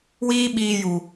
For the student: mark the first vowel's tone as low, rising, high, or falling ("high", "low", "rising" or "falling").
high